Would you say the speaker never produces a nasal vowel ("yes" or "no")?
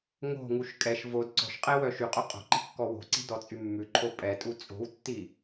yes